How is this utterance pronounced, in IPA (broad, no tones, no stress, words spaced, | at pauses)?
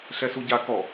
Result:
ɬɛsuɟa kɔ